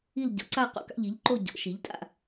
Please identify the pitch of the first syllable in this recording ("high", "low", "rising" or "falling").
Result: falling